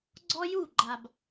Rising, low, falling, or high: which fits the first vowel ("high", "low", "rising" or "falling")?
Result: high